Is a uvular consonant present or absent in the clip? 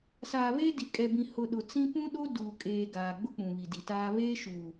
absent